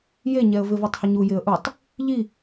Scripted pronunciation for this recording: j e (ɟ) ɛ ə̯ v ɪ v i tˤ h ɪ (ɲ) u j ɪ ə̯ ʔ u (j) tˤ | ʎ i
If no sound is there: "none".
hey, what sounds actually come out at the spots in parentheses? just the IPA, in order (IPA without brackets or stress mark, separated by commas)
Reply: ɲ, ɲ, none